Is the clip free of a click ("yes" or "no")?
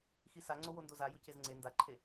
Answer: no